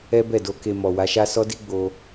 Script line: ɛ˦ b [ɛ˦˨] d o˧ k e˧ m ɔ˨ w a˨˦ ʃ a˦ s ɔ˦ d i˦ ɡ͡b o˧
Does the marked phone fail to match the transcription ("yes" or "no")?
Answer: no